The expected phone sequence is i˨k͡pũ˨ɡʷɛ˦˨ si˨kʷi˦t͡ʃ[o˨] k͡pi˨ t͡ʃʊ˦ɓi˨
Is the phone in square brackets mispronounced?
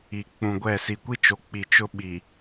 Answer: no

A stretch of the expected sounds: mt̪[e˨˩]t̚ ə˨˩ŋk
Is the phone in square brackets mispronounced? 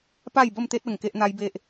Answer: yes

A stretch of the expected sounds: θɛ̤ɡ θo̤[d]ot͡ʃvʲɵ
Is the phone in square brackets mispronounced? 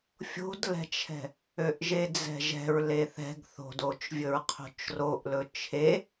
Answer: no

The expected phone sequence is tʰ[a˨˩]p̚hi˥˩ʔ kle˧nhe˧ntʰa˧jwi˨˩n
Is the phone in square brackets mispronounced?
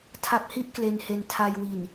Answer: yes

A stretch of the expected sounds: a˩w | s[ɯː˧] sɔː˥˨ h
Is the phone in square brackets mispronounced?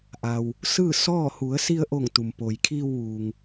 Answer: yes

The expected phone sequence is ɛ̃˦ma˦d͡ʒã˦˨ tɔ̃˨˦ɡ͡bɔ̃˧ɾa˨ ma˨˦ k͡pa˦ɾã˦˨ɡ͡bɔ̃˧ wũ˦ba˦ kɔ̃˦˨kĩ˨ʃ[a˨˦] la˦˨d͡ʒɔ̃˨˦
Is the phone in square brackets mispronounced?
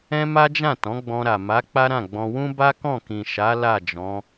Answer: no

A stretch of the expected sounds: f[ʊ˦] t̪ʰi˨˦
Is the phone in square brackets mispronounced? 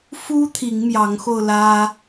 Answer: yes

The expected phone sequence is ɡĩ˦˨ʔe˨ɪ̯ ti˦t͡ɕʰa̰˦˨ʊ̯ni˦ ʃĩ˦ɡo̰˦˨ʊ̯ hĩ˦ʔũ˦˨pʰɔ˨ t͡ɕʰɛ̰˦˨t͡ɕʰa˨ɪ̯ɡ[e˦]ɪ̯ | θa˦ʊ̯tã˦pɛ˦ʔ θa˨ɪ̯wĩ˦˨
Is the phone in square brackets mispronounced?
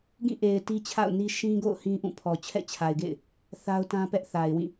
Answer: yes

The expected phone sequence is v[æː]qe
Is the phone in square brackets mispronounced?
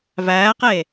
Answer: no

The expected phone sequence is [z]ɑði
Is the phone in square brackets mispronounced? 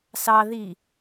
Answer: yes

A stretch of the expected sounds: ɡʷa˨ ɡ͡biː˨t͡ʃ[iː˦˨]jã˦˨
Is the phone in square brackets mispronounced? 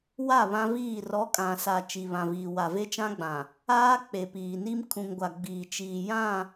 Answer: yes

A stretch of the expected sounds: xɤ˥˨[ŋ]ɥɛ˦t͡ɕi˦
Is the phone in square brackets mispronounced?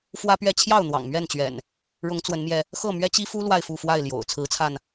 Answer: yes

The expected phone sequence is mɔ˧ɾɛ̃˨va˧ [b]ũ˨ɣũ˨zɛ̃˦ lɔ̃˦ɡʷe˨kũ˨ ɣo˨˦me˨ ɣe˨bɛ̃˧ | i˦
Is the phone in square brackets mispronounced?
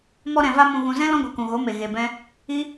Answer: yes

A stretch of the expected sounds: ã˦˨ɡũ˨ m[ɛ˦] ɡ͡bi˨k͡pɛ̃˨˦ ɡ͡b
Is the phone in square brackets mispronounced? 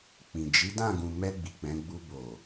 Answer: yes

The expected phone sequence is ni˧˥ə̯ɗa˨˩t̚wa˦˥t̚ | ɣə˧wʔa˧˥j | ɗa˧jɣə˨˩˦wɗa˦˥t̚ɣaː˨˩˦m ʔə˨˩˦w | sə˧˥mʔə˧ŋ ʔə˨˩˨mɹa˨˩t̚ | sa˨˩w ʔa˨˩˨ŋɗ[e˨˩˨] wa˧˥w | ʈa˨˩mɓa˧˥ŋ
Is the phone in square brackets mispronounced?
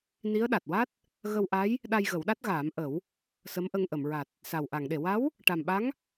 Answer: no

